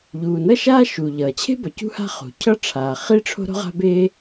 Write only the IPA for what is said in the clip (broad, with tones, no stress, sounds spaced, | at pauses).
ʎ uː˩ n ʌ˥ ʃ aː˥ ʃ u˩ ʎ ʌː˩ t͡ɕʰ e̤˥ b ʌ˩ c ṳ˥ h a̤˥ χ ṳ˩ cʰ ʌ˥ ʈ͡ʂʰ aː˩ χ i˥ ʈ͡ʂʰ o̤˥ ɾ o̤˥ ʁ a̤˥ b e˥